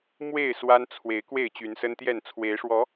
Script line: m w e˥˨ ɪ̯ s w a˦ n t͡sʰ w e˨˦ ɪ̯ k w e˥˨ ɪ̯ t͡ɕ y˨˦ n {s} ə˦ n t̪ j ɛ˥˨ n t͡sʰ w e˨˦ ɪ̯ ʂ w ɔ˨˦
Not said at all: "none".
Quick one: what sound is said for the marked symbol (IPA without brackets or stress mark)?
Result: s